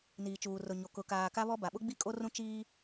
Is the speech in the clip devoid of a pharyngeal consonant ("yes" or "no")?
yes